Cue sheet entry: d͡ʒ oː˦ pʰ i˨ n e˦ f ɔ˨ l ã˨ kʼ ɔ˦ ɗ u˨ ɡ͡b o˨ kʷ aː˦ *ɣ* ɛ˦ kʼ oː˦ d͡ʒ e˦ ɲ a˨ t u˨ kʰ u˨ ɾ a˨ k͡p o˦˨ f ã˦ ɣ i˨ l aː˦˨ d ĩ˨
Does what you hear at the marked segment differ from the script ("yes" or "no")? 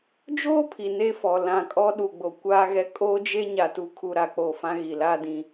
no